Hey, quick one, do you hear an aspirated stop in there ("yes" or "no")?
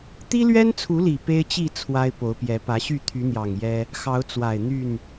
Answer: yes